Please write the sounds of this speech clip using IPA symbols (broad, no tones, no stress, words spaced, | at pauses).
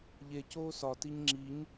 ʎe coːsɒtiɲ ŋ͡ǁiɲ